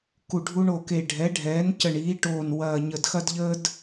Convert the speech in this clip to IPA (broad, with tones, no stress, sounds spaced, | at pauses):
k u˨˩ ɖʱ u˦ ɳ o˨˩ k e˨˩ ɖʱ ɛ˩˥ ɖʱ ɛː˩˥ n c ə˨˩ ɳ iː˩˥ ʈ oː˨˩ n w ɐː˨˩ ɲ ə˨˩ d x ɐ˦ d ʎ əː˦ d